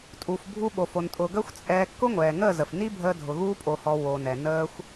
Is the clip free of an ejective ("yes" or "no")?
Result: no